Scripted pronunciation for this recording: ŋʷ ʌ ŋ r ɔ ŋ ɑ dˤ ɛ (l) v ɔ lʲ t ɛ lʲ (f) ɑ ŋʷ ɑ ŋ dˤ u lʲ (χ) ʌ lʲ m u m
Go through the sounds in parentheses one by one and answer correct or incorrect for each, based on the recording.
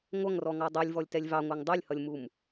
incorrect: lʲ, incorrect: v, incorrect: h

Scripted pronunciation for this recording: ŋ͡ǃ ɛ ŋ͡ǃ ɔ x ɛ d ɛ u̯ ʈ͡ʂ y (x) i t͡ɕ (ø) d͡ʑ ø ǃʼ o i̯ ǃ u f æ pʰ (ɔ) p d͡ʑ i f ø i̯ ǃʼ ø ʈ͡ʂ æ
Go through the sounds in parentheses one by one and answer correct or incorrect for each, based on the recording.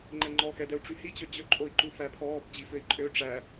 incorrect: h, correct, incorrect: ɔː

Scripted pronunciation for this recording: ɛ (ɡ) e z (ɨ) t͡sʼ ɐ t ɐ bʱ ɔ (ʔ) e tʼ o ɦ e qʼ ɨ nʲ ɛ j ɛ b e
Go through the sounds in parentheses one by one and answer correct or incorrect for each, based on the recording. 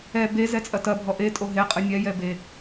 incorrect: b, incorrect: ɛ, correct

